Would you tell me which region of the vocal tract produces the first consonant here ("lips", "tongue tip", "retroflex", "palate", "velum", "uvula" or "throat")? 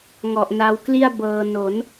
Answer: velum